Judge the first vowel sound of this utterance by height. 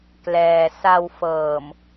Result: mid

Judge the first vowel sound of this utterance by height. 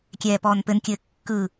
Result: mid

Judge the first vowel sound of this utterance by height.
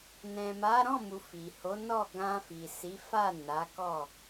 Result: mid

